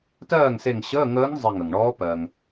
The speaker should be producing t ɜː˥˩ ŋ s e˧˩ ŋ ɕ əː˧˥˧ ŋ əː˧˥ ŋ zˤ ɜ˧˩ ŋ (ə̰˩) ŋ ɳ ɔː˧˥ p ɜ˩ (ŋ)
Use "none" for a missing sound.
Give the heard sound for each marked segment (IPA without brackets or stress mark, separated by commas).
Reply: ə˩, ŋ